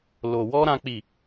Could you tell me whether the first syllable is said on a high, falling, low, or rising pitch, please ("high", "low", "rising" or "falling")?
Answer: low